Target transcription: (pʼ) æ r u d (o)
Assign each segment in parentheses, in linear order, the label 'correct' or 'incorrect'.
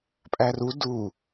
correct, incorrect: u

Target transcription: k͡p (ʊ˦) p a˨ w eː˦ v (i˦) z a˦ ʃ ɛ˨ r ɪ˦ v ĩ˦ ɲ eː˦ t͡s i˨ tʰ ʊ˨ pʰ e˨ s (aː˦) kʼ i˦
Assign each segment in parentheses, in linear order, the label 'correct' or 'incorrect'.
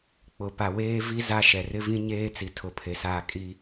incorrect: ʊ˨, correct, correct

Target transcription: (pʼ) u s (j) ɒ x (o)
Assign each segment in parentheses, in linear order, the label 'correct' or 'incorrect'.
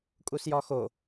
incorrect: kʼ, correct, correct

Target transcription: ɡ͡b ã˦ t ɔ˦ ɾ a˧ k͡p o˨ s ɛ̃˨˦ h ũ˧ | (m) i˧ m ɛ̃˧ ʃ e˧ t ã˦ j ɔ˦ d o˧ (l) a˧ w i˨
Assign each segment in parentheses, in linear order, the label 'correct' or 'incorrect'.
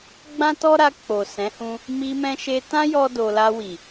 correct, correct

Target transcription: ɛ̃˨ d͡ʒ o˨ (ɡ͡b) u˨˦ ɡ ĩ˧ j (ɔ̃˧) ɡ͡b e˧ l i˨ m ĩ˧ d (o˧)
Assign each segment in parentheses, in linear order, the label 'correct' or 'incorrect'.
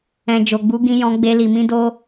correct, correct, correct

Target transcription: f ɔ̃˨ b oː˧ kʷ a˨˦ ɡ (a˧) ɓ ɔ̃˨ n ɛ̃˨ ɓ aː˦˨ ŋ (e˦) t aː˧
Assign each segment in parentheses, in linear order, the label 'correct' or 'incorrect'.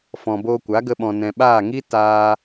incorrect: ə˧, incorrect: i˦

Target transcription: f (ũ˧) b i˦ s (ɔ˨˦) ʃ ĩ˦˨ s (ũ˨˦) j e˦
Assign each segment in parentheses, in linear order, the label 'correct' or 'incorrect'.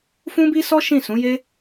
incorrect: ũ˦, incorrect: ɔ˦, correct

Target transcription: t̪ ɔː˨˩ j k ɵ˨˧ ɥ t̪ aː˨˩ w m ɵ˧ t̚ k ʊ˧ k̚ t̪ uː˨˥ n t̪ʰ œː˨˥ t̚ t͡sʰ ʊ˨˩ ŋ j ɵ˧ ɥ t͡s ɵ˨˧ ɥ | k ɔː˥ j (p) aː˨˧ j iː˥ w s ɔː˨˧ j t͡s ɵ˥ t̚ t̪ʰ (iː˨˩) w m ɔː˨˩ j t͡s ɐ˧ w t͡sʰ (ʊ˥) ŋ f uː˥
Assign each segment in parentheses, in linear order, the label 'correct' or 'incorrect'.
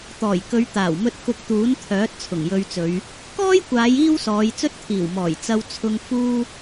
incorrect: kʷ, correct, incorrect: ʊ˧

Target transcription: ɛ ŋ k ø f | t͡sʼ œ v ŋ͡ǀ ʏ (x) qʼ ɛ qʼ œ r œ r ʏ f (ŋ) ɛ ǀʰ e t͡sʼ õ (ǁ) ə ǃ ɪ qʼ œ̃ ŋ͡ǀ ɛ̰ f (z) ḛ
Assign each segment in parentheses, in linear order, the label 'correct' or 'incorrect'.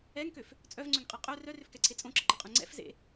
incorrect: ŋ, incorrect: k, correct, correct

